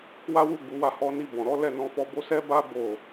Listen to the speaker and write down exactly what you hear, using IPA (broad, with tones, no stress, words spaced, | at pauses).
wa˦wu˦˨ɡ͡bu˨˦wa˦˨ hɔ˧ni˧ bɔ̃˨ɾɔ˨˦ lɛ˦˨nɔ̃˧fɔ˧bo˦ sɛ˦ba˦ bo˦˨